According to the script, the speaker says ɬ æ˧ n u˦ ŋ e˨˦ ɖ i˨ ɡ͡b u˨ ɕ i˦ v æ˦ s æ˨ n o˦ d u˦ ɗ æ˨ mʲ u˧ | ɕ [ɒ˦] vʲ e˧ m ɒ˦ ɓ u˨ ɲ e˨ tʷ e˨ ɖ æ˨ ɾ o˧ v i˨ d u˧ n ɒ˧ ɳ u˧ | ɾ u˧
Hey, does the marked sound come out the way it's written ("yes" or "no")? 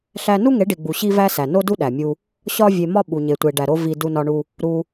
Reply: yes